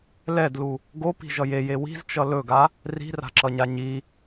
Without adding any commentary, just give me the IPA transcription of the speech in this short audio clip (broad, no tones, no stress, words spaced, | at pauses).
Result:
lɛdlu | ɡopi̤ʒʌj eje wi̤zt͡ʃʌ lɵɡa | ri̤ra̤ǁʌɲa ɲi